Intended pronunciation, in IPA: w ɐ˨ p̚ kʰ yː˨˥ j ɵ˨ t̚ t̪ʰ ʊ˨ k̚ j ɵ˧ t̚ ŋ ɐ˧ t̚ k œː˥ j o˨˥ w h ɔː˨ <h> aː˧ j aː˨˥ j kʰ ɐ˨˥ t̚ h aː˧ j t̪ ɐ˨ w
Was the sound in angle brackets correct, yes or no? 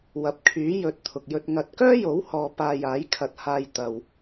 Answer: no